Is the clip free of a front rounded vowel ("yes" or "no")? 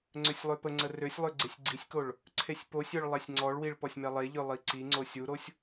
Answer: no